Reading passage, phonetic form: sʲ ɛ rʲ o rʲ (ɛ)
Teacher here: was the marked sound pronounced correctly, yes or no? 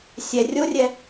yes